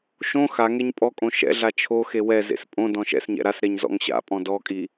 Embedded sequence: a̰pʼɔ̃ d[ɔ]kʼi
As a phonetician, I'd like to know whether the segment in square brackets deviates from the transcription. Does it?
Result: no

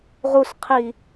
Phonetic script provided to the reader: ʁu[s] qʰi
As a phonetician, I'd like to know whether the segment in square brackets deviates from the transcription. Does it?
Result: no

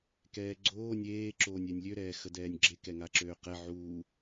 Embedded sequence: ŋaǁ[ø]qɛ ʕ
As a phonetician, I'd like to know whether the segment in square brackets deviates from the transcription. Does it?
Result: yes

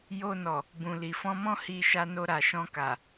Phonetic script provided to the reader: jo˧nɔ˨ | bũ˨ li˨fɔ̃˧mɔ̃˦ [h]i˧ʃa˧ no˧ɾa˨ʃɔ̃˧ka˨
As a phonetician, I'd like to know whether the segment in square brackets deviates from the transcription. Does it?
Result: no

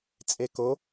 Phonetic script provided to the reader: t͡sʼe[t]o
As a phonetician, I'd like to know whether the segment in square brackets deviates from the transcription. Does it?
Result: yes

